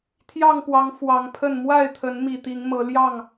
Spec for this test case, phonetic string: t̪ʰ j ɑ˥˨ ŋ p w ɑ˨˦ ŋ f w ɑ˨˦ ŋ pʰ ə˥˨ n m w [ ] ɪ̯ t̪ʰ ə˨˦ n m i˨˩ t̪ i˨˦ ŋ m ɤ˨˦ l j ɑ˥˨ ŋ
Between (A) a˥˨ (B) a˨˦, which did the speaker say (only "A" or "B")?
A